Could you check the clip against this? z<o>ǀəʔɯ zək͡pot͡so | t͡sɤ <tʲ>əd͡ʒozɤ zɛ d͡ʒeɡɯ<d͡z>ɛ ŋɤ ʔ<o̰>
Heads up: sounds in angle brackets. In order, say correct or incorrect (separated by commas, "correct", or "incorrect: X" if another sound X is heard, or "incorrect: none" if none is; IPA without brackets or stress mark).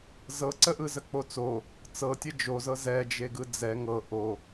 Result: incorrect: ɤ, correct, correct, incorrect: o